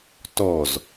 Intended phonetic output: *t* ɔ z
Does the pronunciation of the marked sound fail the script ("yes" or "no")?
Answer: no